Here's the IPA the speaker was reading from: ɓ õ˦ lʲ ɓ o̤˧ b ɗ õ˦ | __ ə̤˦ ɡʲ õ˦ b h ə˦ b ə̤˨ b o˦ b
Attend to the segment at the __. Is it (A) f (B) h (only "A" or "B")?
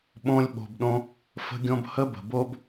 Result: A